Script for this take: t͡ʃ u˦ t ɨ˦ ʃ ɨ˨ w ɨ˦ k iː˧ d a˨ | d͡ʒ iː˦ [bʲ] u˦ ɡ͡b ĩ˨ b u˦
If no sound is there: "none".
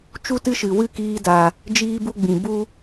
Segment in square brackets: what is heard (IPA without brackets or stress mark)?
b